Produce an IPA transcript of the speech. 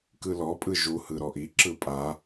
k ɯ l ɔ pʼ ɯ ʒ u h ɯ ɾ ɔ ʔ i ǁ ɯ pʼ a

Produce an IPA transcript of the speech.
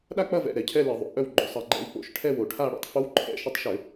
ɗ a˥˧ k͡p ɐ˥˧ v ɛ̰˩˧˩ ɾ ɛ˩˧ cʰ ɛ˥˧ l ɪ˧˩˧ ðˤ o̰˩˧ ʔ œ˥˧ w ɡ͡ǃ ʊ˩˧ sˤ ɐ˧˩˧ ɡ͡ǃ ɛ̰˧˥ w k͡p o̰˩˧˩ ʃ ʈʰ ɛ˥˧ w o˩˧ ʈʰ a˥˧ ɽ ṵ˩˧ tˤ f o˧˥ w ǃʰ ɛ̰˧˩˧ ʃ ʊ˧˥ tˤ ʃ ʏ˧˩˧

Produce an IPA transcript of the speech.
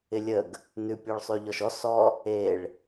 ɪ lʲ ə ɡ | n ʉ pʲ ɔ ɭ sˤ ʉ ʎ ɔ ʃ ɔ s ɔ | e ɭ

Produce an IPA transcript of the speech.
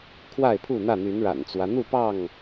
kʰ w a˥˨ ɪ̯ pʰ u˥˨ n̪ ä˥˨ n̪ y˨˦ n ɻ a̰˨˩ n t͡s w ä˦ n̪ u˥˨ p ɑ˥˨ ŋ

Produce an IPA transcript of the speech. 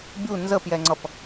bʲ u n z ə p j ɛ ŋ͡ǀ ʌ p

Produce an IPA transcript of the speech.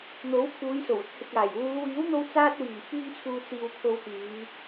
n̪ o˨˥ w kʰ uː˨˧ j s o˨˩ w ʊ˧ k̚ h ɪ˨ k̚ aː˨˩ j w uː˨˧ w iː˨˥ w n̪ o˧ w t͡s aː˧ t̚ w iː˨˩ f yː˧ ŋ t͡sʰ uː˨ t͡s iː˨ w kʰ o˨ w k yː˨˧

